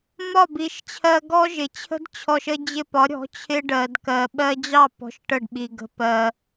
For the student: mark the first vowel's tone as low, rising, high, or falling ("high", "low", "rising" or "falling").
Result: falling